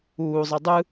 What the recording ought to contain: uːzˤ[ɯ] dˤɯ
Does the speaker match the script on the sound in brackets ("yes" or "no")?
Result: yes